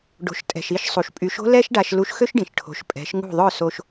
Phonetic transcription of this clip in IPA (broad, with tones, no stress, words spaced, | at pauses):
ɖo̤˩ʃ tʼɛ̤˩ʃi˥˩ʃsˤu˩ʃ pʼy˩˥ʃo̤˥lɛ˥ʃ ɖa˧ʃlu˧ʃxø˥ʃɖĩ˩ʃ ʈʰo̤˩˥ʃ pʼɛ̤˩˥ʃŋṳ˥˩ ðˤœ˥˩so˧ʃ